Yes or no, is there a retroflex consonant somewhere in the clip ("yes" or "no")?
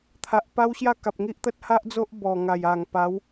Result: no